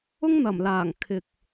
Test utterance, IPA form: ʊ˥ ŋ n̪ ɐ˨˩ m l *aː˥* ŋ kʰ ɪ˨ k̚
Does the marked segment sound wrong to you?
yes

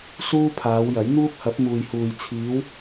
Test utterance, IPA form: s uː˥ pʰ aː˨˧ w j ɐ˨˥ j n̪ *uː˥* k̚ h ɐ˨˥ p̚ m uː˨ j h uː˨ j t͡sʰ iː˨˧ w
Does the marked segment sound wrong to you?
no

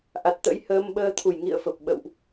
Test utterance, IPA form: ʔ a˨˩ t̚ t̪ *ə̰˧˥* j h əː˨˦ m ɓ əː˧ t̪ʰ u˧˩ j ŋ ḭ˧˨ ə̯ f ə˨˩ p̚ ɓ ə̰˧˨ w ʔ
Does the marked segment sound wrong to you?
no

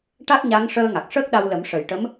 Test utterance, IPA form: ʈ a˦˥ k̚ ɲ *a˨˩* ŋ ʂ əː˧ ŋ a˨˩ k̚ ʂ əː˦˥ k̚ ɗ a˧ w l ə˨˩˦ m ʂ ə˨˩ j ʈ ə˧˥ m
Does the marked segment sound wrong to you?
yes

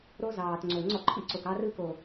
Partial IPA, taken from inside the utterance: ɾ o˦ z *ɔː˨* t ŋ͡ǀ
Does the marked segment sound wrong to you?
yes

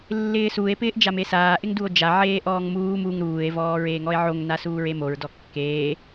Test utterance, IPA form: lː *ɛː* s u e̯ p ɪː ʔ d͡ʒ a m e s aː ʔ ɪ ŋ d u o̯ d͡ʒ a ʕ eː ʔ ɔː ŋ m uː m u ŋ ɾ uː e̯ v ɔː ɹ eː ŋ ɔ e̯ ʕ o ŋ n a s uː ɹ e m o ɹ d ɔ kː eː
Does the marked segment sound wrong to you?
yes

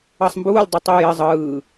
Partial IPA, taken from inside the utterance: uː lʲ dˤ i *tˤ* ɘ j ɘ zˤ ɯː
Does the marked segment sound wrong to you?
no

